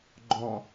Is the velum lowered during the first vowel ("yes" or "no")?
yes